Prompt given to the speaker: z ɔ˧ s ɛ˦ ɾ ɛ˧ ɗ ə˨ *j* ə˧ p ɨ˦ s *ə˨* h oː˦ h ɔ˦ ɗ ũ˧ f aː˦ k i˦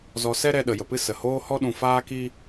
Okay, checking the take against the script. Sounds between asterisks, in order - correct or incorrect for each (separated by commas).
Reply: correct, correct